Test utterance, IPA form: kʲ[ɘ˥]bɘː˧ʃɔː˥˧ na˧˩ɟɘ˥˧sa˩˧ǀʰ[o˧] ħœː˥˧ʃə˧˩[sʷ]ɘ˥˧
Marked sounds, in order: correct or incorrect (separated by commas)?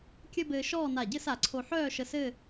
correct, correct, incorrect